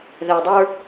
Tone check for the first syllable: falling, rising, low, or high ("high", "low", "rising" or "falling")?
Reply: low